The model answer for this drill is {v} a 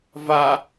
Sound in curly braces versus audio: correct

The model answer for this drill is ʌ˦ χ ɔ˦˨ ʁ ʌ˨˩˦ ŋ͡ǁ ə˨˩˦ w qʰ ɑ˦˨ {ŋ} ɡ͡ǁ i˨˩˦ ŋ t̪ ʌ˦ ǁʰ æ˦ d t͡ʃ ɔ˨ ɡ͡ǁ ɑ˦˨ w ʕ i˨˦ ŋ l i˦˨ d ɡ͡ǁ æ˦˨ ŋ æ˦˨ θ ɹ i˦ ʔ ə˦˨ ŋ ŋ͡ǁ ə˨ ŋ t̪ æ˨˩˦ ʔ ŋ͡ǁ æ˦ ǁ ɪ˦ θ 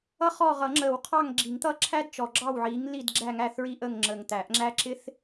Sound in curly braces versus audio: correct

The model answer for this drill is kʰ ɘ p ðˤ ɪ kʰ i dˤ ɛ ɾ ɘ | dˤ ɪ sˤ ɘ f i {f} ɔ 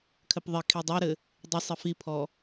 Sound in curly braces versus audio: incorrect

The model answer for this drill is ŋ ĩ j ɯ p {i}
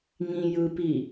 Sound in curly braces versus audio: correct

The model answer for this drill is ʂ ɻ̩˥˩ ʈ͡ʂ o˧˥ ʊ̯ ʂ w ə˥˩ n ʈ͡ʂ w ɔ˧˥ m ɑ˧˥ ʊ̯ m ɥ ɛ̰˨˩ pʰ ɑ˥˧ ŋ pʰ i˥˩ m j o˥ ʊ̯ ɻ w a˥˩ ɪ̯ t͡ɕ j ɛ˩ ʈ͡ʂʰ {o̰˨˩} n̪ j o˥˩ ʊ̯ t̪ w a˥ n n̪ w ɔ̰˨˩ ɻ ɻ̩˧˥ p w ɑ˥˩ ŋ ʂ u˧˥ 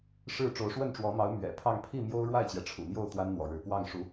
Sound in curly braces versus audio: incorrect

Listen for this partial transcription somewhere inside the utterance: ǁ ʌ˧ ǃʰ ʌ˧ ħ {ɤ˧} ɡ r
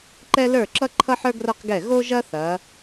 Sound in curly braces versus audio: incorrect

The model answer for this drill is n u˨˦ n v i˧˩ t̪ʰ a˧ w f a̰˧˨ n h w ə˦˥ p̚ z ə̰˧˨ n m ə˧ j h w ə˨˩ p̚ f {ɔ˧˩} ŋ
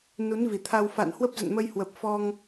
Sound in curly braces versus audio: incorrect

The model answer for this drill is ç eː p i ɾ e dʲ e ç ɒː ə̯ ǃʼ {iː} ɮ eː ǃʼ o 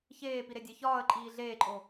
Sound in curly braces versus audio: correct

